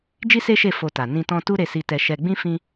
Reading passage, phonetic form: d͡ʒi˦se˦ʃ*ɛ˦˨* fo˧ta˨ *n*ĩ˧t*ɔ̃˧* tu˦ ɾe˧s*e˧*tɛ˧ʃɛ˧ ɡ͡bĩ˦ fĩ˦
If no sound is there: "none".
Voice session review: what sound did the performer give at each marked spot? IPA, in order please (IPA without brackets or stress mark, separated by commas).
e˦˨, n, ɔ̃˧, i˧